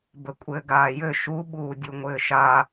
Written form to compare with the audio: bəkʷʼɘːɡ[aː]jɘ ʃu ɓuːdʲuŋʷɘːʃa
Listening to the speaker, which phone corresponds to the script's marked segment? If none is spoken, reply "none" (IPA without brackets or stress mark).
aː